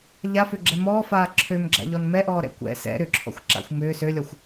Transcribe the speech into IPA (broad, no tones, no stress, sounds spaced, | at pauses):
ʎ a f ø ɡ͡ǁ ɛ m ɔː f aː ǁʰ ø m ɡ͡ǁ a̰ ʎ ɔ n m ɛ ʔ ɔː ɾ ɛ̰ kʷ ɛ̰ s ɛ̰ ɾ ʏ ǁʰ ɔ̰ xʷ ǁ a̰ xʷ m ʏː s ø lʲ ɔ xʷ